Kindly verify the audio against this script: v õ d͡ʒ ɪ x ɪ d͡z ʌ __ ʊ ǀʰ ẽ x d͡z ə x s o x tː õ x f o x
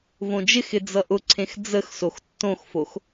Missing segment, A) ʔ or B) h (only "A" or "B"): A